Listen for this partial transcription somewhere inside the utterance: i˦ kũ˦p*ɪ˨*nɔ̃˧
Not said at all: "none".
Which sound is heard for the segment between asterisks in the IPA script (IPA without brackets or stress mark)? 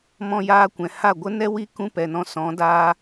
ɛ˨